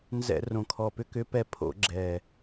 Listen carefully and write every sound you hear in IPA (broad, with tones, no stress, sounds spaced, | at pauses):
n z ɛ̰˧˩˧ r õ˨˩ kʰ ɔ˨˩ p ʏ˧ k ʏ˧˥ p ɛ˧ pʰ o̰˧˩˧ ɡ͡ǁ ɛ˨˩